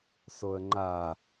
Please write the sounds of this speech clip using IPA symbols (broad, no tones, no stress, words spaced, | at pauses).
soə̯ŋ͡ǃa